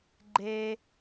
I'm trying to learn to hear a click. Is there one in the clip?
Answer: yes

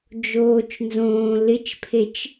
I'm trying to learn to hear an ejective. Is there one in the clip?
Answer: no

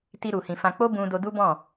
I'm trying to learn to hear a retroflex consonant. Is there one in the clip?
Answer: no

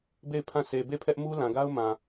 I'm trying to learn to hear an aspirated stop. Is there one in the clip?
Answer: yes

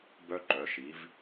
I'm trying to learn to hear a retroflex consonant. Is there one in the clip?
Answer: no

